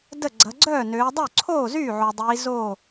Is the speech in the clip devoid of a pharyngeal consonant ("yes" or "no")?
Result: no